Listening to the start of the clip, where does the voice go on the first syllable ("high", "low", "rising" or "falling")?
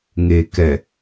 low